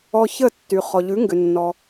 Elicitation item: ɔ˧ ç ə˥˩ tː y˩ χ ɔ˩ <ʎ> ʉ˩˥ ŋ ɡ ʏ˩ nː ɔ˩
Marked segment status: correct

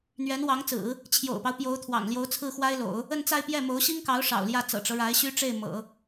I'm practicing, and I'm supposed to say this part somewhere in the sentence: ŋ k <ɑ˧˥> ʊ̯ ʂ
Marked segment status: correct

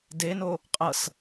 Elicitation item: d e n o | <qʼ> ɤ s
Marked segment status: correct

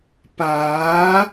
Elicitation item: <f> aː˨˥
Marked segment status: incorrect: p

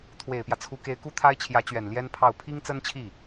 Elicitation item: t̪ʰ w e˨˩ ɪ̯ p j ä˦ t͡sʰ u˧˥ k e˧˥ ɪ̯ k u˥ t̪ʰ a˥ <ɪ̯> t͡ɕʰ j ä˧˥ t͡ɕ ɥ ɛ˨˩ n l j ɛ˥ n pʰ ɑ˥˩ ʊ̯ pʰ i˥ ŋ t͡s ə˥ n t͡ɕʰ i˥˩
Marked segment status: correct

